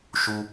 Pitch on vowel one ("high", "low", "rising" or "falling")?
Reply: high